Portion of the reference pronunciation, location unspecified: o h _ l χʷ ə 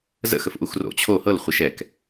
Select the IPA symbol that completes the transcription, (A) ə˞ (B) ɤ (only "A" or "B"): B